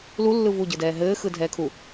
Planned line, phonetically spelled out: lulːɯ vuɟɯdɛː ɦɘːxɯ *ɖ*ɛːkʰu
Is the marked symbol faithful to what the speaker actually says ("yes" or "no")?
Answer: no